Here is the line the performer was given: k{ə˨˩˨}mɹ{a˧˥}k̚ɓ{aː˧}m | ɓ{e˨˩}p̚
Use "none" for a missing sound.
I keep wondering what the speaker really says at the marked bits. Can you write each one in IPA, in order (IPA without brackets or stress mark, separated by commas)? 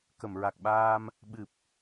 ə˨˩˨, a˨˩, aː˧, ɨ˨˩